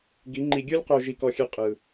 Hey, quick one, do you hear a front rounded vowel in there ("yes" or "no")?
no